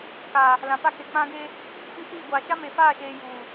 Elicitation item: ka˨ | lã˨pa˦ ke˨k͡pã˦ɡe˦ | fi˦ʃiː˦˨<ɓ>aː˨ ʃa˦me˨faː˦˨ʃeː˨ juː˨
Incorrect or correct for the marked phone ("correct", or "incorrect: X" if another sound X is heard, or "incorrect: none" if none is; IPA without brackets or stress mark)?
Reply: incorrect: ɡʷ